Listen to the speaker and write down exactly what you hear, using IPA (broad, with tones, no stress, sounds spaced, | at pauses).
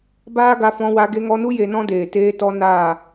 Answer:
b aː˦ ɡ a˧ f ɔ̃˧ w a˧ ɡ e˧ ŋ ɔ˧ n u˦ j e˧ n ɔ̃˦ d eː˨ t eː˧ t ɔ˧ n aː˦˨